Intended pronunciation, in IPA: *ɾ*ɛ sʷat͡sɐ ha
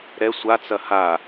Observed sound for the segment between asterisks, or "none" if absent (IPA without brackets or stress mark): ɾ